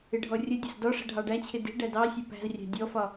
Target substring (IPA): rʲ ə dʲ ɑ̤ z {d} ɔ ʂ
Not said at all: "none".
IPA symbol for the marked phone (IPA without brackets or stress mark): d